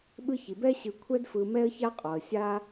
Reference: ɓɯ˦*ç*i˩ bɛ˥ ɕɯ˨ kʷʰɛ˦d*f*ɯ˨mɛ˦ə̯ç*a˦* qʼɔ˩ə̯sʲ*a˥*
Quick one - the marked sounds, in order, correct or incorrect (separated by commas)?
correct, correct, correct, correct